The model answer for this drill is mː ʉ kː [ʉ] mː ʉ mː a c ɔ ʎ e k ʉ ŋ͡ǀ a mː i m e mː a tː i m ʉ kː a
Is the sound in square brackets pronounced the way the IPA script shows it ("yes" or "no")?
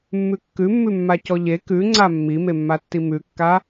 yes